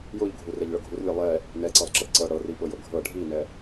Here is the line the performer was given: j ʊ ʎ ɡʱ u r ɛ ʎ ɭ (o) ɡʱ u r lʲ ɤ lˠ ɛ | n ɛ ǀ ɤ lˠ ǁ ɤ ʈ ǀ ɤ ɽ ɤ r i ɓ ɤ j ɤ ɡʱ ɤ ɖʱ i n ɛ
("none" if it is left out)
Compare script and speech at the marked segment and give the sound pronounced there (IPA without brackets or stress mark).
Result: ɤ